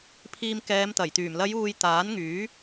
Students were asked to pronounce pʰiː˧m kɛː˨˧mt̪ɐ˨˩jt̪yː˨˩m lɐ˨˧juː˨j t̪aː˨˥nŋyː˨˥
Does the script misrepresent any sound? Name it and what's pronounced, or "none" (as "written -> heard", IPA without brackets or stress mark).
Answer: none